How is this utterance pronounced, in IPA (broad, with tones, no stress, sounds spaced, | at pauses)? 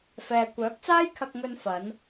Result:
f ɛː˨ kʷ œː˨˥ k̚ t͡s aː˥ j kʰ ɐ˧ k̚ ŋ ɵ˧ n f ɐ˨˧ n